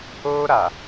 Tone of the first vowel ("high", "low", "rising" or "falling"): high